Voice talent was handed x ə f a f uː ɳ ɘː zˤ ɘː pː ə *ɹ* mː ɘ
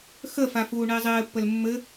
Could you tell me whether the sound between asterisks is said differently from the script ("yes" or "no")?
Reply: yes